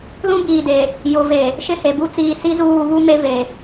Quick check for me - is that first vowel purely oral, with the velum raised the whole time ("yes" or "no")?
no